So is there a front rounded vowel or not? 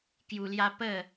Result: no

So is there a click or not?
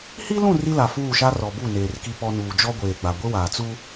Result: no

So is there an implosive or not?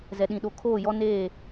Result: yes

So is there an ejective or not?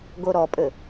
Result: yes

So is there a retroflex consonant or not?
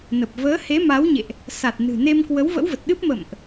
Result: no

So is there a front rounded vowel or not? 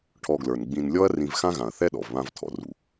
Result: no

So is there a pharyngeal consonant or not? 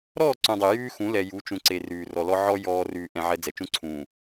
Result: yes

